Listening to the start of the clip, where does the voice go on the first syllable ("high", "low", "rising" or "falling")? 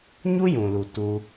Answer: high